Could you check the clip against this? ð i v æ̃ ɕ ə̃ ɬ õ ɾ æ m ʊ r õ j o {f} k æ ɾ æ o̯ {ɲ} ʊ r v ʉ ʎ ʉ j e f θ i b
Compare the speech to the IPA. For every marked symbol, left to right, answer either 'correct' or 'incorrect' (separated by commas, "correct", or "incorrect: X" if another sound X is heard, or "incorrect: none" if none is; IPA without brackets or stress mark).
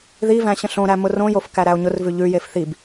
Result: correct, correct